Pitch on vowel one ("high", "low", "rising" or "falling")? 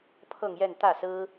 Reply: falling